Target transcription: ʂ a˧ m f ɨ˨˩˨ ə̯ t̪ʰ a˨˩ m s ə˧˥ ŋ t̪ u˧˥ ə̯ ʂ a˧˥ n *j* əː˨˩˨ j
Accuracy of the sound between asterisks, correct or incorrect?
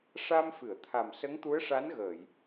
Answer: incorrect